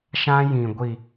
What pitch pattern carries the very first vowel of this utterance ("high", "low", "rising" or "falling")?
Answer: high